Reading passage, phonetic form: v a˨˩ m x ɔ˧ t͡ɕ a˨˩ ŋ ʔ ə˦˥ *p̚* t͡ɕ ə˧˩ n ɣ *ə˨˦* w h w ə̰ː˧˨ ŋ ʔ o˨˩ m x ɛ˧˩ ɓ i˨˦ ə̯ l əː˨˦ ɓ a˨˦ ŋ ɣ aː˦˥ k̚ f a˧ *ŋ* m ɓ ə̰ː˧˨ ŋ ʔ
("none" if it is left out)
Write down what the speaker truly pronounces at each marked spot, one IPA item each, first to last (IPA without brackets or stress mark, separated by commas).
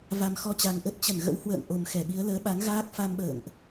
t̚, ə̰˧˥, none